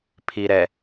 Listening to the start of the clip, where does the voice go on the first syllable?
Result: low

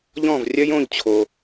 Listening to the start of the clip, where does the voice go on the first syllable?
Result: falling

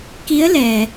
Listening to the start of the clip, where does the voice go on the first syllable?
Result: rising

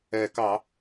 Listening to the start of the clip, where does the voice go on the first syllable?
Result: low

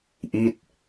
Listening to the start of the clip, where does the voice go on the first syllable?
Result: falling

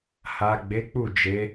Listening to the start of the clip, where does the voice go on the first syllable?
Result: low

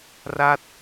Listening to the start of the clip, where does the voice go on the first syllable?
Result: falling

